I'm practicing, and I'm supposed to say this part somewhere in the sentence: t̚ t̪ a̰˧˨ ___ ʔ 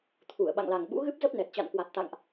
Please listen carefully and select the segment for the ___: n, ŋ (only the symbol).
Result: ŋ